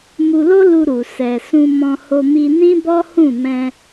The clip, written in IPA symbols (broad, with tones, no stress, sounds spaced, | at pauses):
m u˧ l o˦ l u˧ ɾ u˨ s ɛ˨ s ũ˧ m ɔ̃˧ h o˧ m i˧ n ĩ˦ b ɔ˦ h ũ˦˨ m ɛ̃˧